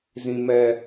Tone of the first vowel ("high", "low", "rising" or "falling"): low